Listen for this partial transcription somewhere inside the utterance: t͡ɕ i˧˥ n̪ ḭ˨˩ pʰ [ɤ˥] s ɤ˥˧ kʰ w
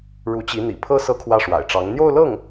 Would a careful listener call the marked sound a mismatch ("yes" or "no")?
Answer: no